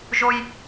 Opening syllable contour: high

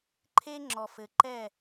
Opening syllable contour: high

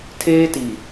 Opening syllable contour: high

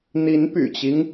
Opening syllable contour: rising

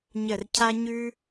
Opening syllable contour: low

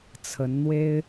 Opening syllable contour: rising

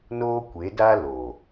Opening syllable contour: high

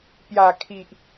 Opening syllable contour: low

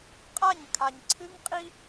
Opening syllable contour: falling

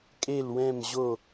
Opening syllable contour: falling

